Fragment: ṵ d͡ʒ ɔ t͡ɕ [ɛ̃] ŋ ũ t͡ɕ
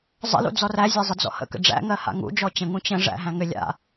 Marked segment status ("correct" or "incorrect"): incorrect